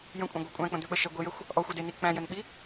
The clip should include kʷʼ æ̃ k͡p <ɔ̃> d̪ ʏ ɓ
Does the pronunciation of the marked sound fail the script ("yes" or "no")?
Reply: yes